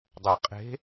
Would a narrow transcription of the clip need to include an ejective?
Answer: yes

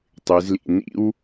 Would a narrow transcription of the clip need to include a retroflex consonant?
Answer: no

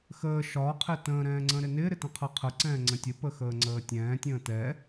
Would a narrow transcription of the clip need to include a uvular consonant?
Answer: yes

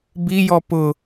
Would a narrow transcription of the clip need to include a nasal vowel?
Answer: no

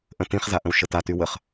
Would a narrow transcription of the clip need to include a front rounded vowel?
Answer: yes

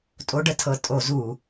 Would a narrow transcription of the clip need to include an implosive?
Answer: no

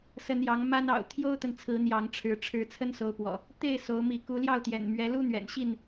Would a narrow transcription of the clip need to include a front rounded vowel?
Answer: no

